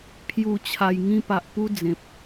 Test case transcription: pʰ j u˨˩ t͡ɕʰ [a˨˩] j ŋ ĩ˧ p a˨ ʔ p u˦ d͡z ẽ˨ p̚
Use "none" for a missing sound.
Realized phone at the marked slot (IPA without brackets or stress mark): a˨˩